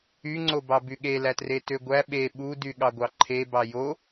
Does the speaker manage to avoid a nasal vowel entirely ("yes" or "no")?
yes